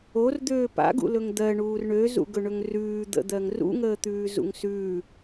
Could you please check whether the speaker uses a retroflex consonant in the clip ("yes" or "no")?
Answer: yes